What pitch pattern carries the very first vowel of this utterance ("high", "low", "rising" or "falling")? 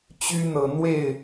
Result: high